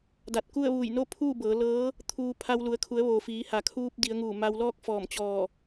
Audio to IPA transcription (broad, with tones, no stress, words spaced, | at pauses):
da˧˩t̚ku˥˨ə̯ʋuː˧˩j no˥˨pʰuː˥˨bɤː˩˧ lɤː˧˥ | t̪ʰuː˧pʰa˧w lu˩˧ə̯kʰu˩˧ə̯ ʋoː˩ fiː˩˧ha˩kʰuː˧p̚ di˩˧ə̯ŋuː˧˩ ma˧wlɔː˥˨k̚ fɔː˧˩mt͡ɕɔː˧˩